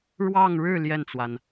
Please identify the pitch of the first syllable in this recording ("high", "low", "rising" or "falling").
falling